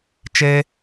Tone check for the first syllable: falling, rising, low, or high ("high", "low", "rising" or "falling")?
high